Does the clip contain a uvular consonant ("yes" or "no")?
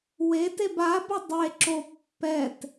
no